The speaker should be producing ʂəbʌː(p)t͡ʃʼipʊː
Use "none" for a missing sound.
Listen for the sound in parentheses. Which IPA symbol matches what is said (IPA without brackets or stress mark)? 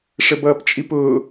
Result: p